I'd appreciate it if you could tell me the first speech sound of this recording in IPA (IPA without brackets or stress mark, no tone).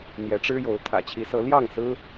n̪